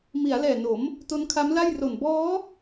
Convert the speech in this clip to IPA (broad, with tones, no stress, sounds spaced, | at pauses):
m i˩˦ a̯ l ɛː˨˩ n o˩˦ m | t o˦˥ n kʰ a˦˥ m l a˥˩ j r o˨˩ n b ɔː˦˥